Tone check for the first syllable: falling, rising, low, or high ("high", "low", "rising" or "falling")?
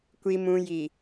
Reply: low